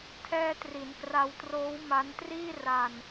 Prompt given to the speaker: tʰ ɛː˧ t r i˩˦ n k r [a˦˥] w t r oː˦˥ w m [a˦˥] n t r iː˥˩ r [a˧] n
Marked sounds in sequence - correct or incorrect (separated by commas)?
incorrect, correct, correct